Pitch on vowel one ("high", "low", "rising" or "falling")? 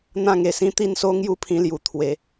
falling